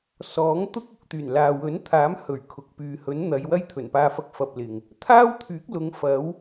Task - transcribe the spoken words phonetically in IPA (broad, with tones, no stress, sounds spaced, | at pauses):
s ɔː˨˥ ŋ t̪ ʊ˥ k̚ ʊ˨ k̚ t̪ yː˨˩ n l aː˨ w ɵ˨˥ n t̪ʰ aː˨˥ m h ɵ˨˩ ɥ kʰ ʊ˨ k̚ p yː˨ h ɵ˨˥ n n̪ ɐ˨˧ j w ɐ˥ j t̪ʰ ɵ˨˩ n p aː˧ f ɐ˧ k̚ f ɐ˧ p̚ l ɪ˨ ŋ | t̪ʰ aː˥ w t̪ʰ yː˨˥ k̚ l ʊ˨˧ ŋ f ɐ˨˥ w